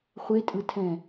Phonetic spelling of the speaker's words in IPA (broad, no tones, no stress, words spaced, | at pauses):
χʷetʼɯtʰɛ̃